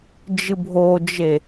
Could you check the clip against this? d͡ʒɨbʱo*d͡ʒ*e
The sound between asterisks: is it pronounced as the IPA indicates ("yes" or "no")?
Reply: yes